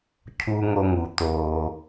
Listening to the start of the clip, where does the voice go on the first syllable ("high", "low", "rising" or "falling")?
high